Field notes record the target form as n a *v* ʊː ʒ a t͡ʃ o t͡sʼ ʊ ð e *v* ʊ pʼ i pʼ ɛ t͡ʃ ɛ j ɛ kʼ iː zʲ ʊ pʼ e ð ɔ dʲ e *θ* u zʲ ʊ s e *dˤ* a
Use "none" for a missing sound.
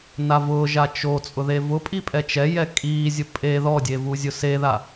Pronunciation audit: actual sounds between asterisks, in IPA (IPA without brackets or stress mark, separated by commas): v, v, v, ð